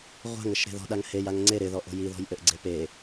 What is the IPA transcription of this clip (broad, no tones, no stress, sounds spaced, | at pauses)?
ʁʷ a̤ ŋ ɘ ʃ ɾ e̤ ð ɔ̤ ɗ a ŋ h e j a ŋ ŋ͡ǀ e ɾ ɪ ð ɔ ʔ o̤ j i ð ɔ̤ j ʔ ɘ ʔ ɡ͡ǀ e p e